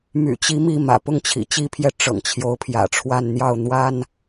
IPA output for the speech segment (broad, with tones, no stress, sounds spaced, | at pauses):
m y̰˨˩ t͡ɕ i˧˥ m i˥˩ m ä̰˨˩ p ʊ˥˩ ŋ t͡ɕʰ ḭ˨˩ t͡ɕ i˥ pʰ j ɛ˥˩ ʈ͡ʂ ɤ̰˨˩ ŋ t͡ɕʰ j o˧˥ ʊ̯ pʰ j ä̰˨˩ ʈ͡ʂʰ w a˥˧ n n̪ j ɑ˥˩ ʊ̯ n̪ w a˥ n